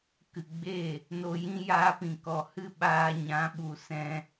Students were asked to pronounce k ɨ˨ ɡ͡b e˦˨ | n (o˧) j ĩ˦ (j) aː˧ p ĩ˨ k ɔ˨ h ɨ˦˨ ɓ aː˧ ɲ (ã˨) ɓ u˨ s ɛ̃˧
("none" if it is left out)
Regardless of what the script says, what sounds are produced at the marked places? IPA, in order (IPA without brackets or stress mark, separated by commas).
o˧, j, ã˨˦